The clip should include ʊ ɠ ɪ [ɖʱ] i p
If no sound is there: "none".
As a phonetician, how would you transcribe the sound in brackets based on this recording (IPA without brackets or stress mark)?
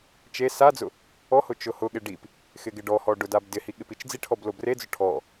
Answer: ɖ